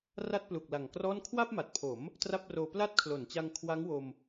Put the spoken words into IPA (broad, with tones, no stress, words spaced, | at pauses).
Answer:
ra˥˩t̚plu˨˩k̚la˨˩ŋkrɔː˥˩n kʰwa˥˩p̚ma˨˩t̚pʰo˩˦m | tra˥˩p̚roː˧ pla˦˥t̚kʰlo˩˦nt͡ɕa˧ŋ kʰwa˦˥ŋwo˧m